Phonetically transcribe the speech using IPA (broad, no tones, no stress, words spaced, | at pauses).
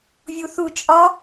vʲuθu t͡ʃʼɒ